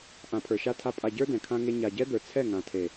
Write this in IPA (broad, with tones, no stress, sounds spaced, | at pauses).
ʔ ã˨ pʰ ə˞˨ ʃ a˧ tʰ a˧ pʼ a˨ ɟ ə˞˧ d ɛ̃˨ kʰ ã˧ ŋ e˧ ɲ a˨ ɟ ɛ˦ d̪ ə˞˨ t͡sʰ ɛ˦˨ ŋ ã˨ tʰ e˨